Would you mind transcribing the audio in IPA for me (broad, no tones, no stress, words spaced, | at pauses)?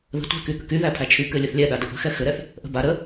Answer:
ðə̤tʷæ̤ky ɠə̤kyðæpʰæ t͡ʃʰykɘ lʲɘθlʲɛɗa dəʔə̤xɛ xɘɾɛθ | ʔə̤ba ɾə